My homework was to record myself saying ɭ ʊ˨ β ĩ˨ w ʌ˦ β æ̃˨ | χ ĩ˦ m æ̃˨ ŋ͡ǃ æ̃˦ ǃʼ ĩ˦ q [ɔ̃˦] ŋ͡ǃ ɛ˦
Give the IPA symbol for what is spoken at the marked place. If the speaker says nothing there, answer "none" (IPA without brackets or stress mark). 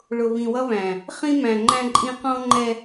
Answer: ɔ̃˦